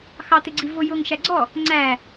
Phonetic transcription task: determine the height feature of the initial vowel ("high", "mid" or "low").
low